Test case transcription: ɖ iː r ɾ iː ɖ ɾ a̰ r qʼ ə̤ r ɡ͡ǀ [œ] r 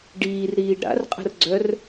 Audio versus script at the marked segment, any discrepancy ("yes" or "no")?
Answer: no